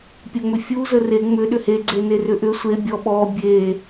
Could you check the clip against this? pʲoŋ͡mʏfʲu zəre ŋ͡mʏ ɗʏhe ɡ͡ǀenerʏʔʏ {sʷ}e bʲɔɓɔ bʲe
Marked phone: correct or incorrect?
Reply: correct